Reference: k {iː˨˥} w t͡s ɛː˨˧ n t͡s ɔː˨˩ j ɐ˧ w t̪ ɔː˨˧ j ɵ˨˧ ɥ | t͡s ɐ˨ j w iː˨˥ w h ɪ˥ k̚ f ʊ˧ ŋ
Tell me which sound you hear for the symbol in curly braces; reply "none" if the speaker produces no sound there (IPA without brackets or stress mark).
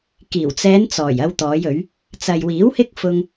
iː˨˩